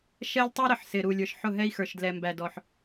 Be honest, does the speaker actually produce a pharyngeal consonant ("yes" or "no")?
yes